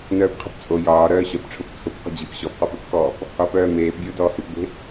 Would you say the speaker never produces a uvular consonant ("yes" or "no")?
no